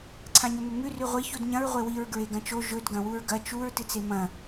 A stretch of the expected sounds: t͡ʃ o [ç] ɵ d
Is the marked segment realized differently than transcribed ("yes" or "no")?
yes